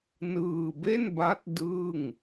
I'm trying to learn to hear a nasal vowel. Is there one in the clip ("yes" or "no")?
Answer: no